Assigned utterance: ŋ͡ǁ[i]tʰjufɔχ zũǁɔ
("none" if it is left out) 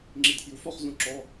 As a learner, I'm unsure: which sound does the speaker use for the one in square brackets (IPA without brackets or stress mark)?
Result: i